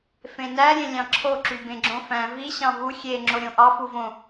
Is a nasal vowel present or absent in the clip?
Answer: present